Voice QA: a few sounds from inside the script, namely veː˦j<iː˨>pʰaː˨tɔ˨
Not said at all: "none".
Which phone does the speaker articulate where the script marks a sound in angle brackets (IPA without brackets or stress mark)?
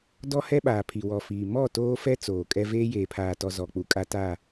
eː˨